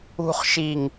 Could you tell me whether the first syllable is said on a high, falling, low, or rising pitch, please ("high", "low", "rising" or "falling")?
low